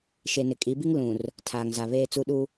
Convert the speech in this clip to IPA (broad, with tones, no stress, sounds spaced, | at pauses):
ʃ e˨ n ɪ˨ kʼ i˨˦ b i˦ ŋ l ũ˨ r | tʰ aː˨ ŋ z a˨ β eː˦ t͡s u˦ ɗ u˦